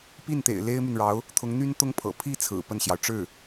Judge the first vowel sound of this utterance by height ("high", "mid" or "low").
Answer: high